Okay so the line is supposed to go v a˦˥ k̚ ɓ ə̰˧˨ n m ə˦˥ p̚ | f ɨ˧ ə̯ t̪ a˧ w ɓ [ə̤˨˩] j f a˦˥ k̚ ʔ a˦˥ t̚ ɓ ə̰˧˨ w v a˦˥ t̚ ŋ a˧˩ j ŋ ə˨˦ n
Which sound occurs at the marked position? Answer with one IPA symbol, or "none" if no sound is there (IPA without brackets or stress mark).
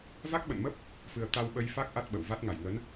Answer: ə˧